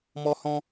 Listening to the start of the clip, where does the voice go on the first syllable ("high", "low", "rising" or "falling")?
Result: high